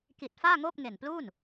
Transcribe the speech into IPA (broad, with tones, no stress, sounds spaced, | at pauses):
k i˨˩ t̚ f aː˥˩ ŋ oː˥˩ p̚ ŋ e˨˩ n p l uː˥˩ n